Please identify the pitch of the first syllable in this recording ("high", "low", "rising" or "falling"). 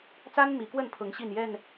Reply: high